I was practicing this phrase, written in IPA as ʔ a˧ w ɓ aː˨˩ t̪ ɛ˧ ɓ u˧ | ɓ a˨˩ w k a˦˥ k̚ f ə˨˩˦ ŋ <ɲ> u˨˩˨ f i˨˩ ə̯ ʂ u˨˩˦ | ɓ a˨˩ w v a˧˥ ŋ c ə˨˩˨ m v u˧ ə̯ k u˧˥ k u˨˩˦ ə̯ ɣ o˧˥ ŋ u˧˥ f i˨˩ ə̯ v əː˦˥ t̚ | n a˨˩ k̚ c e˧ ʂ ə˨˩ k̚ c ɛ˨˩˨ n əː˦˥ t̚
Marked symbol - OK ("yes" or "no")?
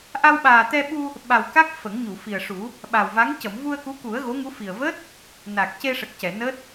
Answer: yes